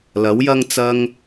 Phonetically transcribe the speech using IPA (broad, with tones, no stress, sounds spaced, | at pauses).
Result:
l ɐ˨˥ w j ɐ˥ ŋ t͡s ɐ˧ ŋ